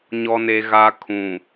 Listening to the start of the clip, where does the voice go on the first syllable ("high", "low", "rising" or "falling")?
low